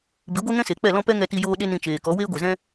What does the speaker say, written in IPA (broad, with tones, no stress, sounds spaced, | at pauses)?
b i˨˦ ɡʷ e˦ ŋ ɛ̃˦ s e˨ k͡p ɛ˦˨ l ɔ̃˦ p ɛ˦ ŋ ɛ˧ t i˧ j oː˧ ɗ e˦ n ĩ˧ t͡ʃ eː˨ k ɔ˨˦ w eː˦ ɡʷ e˨ z ɛ̃˦